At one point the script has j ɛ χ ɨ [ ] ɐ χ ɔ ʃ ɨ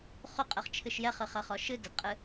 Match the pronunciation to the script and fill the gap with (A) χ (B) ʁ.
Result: A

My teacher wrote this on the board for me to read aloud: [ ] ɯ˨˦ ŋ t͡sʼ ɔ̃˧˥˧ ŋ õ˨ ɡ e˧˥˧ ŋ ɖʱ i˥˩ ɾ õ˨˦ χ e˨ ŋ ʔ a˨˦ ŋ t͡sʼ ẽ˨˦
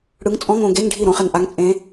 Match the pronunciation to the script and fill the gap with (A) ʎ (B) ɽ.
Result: B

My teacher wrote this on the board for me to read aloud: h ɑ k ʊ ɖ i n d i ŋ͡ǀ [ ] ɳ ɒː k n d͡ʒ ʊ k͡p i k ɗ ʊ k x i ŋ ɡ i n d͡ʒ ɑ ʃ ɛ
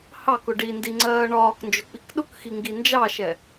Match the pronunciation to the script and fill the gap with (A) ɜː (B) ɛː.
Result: A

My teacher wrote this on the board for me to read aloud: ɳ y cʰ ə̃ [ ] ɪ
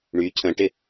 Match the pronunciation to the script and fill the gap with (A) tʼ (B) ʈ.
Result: B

